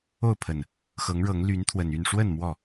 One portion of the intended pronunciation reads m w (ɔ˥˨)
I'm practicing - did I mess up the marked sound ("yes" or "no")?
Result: no